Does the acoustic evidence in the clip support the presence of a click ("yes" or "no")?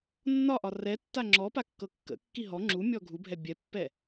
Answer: yes